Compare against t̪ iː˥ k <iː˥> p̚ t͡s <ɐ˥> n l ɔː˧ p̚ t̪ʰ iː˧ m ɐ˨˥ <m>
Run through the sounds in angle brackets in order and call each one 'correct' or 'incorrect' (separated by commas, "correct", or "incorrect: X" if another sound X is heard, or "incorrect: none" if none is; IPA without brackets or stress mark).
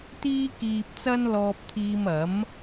incorrect: iː˧, correct, correct